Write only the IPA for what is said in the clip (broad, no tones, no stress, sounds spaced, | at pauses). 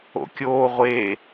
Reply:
o̰ kʲ oː ʁʷ e